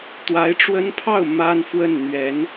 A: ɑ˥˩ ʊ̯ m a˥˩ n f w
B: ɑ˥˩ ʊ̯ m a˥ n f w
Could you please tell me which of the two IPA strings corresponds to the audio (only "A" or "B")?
B